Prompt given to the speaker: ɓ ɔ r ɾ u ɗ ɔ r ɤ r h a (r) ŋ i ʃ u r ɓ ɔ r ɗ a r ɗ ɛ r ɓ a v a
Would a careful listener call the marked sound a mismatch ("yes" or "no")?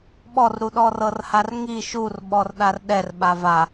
no